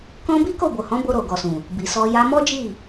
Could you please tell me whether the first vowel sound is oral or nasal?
nasal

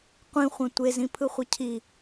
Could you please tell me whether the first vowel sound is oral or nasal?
nasal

